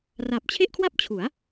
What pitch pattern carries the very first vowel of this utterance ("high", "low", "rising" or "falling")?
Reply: low